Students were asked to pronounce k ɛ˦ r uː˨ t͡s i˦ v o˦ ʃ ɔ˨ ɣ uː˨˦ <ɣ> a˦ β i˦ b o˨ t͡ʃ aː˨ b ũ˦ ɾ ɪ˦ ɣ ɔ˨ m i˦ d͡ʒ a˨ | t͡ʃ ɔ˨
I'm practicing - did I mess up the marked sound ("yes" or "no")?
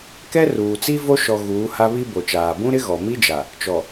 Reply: yes